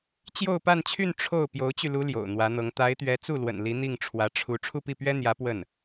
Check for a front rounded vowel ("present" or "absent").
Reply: present